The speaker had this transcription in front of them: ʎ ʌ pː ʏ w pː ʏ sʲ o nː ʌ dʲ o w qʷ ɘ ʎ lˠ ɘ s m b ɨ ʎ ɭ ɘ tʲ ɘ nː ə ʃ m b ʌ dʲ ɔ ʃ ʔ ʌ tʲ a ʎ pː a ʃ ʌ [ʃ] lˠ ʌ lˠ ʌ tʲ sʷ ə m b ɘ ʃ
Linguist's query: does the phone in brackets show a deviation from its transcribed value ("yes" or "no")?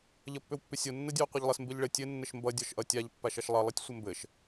no